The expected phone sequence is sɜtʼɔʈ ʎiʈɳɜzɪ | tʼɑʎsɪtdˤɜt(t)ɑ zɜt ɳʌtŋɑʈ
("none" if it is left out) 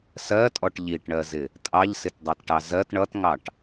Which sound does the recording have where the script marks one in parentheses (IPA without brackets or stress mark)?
ʈ